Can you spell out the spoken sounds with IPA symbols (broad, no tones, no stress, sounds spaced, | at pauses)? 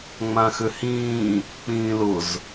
ŋ͡m ã x ʏ h ĩː | k͡p ĩː l ʊ z